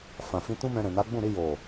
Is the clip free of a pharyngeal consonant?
yes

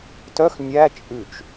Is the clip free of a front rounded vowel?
no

